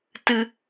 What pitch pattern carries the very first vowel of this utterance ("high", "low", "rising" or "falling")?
high